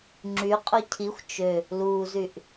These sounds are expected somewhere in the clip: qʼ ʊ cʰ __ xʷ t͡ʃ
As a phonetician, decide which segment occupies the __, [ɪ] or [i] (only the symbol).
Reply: i